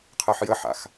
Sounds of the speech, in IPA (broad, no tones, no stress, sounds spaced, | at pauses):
qʰ ɜ ħ j ə ħ a̰ x